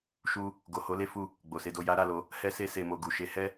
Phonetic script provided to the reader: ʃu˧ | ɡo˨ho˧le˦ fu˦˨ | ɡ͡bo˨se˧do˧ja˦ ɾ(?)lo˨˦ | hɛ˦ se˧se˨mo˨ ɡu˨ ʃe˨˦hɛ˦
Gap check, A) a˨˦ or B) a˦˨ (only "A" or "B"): B